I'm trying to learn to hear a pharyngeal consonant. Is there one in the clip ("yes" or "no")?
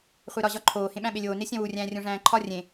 no